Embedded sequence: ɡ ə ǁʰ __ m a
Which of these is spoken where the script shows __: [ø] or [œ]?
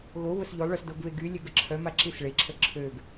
œ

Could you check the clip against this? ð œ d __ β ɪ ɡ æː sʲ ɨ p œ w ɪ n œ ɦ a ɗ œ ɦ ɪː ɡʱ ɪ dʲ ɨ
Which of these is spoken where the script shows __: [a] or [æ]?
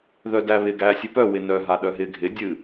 æ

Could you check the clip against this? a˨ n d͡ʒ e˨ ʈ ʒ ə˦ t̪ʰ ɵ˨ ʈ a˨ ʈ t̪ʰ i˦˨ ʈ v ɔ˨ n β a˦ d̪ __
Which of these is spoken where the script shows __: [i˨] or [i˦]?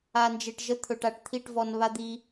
i˦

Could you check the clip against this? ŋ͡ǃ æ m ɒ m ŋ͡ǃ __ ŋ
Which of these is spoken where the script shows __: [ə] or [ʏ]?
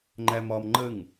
ə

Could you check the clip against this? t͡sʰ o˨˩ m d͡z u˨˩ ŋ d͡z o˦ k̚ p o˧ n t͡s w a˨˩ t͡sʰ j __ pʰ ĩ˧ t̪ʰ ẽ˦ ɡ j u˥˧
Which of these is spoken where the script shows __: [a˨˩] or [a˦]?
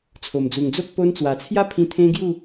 a˦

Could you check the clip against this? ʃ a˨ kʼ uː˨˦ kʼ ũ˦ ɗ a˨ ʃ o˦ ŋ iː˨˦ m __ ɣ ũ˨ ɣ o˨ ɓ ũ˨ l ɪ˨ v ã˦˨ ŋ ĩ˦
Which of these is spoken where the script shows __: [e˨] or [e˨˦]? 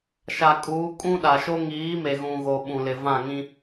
e˨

